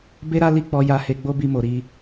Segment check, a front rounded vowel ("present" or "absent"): absent